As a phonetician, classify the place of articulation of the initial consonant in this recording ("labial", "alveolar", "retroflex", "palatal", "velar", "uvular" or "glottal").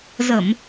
alveolar